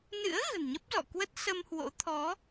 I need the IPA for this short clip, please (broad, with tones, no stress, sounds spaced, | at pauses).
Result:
n ɨ̰˧˥ ə̯ ɣ ə̤˨˩ n ɲ ə˦˥ p̚ z ɔ̰˧˨ k w ə˦˥ t̚ s ə˧ m h w o̰˧˥ t̪ʰ ɔ˨˦